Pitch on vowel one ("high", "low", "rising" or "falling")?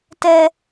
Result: high